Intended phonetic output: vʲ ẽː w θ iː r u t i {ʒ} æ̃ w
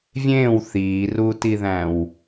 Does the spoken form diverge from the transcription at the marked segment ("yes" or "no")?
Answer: yes